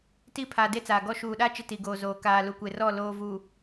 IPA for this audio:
t i˦˨ pʰ aː˨ d e˦ t͡s aː˨ ɡ ɔ˦ ʃ uː˨ ɗ aː˦ t͡ʃ ɪ˦ t i˨ ɡ oː˨ z oː˨ k aː˨ l u˨ kʷ e˨ r ɔ˦˨ l oː˦ v u˨

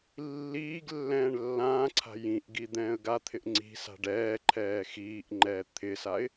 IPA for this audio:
lː iː ɡ lː ɛ̃ː ɳ lː ãː ǀʰ a̤ j ĩ ʔ ɡ i d̪ ɛ̃ː ə̯ ɡ a t̪ʰ ɪ ʔ ŋ͡ǀ i̤ s a̤ ɖ ɛː ǃʰ ɛː x iː ʔ ŋ͡ǃ ɛː t̪ʰ ɪ s a ɪ̯

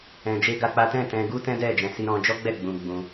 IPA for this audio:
ɛ̃˧ d͡ʒ e˦ ɡ a˦ k͡p a˦ t ɛ̃˦˨ t ɛ̃˧ ɡ u˦ t ɛ̃˦ d ɛ˦˨ d͡ʒ ɛ̃˧ s i˧ ɾ ɔ̃˧ d͡ʒ ɔ˦ ɡ͡b ɛ˦˨ ɡ͡b ũ˧ ɡ͡b ũ˧

